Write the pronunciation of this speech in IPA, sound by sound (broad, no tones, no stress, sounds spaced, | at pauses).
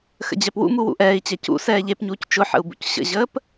x ə̰ d͡ʑ ɛ p w ṵ m u w ṵ ʔ ɛː i̯ t͡ɕ ɛ c ṵ s ɛː ʎ e p ɲ uː c t͡ʃ ʊ ħ ə̰ u̯ b ṵ c ɕ ə̰ ʑ əː p